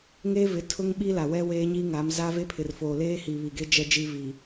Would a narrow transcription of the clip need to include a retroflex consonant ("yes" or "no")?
no